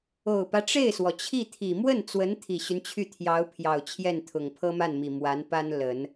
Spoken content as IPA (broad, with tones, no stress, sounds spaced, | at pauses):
o˨˩ ʊ̯ p ä˦ ʈ͡ʂ e˥˩ ɪ̯ s w ɔ˩ t͡ɕʰ i˥˩ t̪ʰ i˨˩ m w ə˥˩ n t͡s w ə˧˥ n t̪ʰ i˨˩ ɕ y˦ n t͡ɕʰ y˥˩ t̪ʰ j ɑ˧˥ ʊ̯ pʰ j ɑ˨˩ ʊ̯ t͡ɕʰ j ɛ˥˩ n t̪ʰ ʊ˨˩ ŋ pʰ ɤ˥ m a˥˩ n m i˨˩ m w a˧˥ n p a˥ n l ə˨˩˦ n